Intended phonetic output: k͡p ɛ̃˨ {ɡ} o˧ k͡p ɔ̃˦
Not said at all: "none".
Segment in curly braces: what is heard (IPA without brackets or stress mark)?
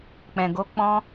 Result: ɡ